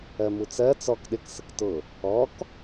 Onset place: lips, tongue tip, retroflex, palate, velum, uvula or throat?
lips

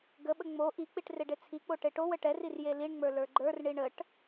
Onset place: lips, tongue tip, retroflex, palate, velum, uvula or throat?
velum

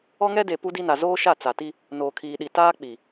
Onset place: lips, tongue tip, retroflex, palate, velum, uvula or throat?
velum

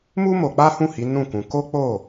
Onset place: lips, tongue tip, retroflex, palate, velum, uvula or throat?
lips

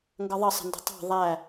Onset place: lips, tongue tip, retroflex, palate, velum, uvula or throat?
velum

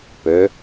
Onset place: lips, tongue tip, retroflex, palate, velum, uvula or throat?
lips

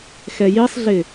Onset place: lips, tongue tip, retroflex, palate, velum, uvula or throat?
velum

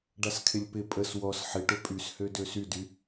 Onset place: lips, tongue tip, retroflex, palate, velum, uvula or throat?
retroflex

